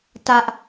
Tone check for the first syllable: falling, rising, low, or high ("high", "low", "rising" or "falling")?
high